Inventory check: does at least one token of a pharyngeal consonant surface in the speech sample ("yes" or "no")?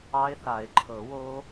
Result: no